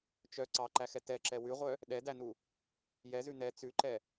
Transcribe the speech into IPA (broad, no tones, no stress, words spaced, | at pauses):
t͡ʃœ ǀɑǃæxɛ tɛǁɛ wʉʁʷœ | ɗɛdænu | jɛzʉ nɛ t͡sʉǃɛ